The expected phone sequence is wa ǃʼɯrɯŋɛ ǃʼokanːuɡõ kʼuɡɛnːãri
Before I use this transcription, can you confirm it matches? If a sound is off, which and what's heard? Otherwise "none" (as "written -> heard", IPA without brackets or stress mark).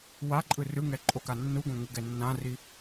kʼ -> ŋ